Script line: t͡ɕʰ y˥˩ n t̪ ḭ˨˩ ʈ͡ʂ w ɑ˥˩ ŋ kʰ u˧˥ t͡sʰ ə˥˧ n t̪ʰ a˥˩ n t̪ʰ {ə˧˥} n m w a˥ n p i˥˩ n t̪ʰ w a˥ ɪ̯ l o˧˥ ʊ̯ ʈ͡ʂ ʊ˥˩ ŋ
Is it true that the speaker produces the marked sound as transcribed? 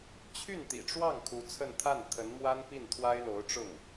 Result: yes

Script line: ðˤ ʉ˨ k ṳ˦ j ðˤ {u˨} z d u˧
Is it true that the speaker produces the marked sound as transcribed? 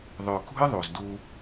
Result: yes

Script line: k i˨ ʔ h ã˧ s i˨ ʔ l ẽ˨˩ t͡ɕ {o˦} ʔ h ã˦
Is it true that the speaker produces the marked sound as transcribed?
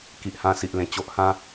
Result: yes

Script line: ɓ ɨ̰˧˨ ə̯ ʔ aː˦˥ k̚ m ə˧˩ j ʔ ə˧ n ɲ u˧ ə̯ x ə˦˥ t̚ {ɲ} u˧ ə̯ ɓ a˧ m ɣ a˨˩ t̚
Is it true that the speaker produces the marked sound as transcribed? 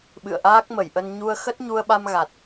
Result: yes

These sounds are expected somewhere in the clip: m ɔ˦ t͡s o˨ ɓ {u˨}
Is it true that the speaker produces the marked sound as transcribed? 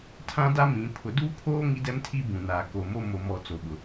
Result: no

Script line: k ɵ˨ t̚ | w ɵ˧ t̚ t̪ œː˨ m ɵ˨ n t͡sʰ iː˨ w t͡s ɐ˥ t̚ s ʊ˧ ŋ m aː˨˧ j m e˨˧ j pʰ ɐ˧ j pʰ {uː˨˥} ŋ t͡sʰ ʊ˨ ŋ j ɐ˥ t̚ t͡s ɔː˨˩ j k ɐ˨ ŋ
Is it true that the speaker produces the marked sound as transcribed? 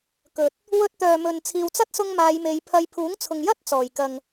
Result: yes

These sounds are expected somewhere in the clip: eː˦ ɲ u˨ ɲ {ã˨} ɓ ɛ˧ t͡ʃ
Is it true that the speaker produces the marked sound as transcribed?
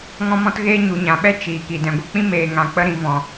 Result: yes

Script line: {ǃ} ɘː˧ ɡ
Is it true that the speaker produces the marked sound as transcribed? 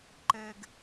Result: yes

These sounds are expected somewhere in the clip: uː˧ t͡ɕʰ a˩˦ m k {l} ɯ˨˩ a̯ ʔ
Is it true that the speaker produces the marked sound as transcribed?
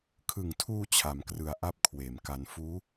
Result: no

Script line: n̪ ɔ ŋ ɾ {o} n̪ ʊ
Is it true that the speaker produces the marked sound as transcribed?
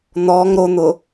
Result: yes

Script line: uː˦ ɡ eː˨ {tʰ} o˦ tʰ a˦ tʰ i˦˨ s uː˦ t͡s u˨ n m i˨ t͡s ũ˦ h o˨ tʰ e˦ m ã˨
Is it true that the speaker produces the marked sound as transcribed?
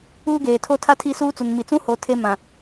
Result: yes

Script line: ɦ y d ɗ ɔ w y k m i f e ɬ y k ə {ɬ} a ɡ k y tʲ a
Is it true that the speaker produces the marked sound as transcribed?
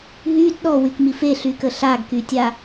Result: yes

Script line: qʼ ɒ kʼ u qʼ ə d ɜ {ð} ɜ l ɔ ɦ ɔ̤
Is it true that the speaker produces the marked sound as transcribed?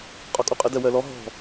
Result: no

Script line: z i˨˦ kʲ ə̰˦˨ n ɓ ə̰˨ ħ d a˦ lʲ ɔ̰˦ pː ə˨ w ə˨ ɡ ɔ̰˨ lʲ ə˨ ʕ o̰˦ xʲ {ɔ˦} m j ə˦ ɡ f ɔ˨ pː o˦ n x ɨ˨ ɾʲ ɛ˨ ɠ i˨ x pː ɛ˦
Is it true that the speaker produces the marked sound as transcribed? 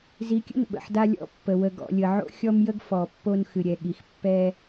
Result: yes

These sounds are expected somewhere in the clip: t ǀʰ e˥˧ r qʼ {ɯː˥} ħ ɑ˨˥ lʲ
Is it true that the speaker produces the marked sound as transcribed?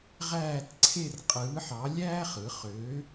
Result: no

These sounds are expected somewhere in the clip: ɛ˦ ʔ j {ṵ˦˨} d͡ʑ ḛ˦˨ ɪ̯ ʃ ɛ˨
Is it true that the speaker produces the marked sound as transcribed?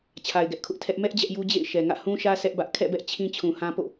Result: no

